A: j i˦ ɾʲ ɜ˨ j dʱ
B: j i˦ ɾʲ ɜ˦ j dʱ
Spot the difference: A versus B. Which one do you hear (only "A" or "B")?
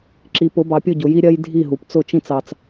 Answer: B